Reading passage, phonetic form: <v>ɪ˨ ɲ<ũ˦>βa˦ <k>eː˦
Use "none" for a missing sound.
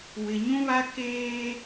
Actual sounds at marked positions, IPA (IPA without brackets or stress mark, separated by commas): w, ũ˦, k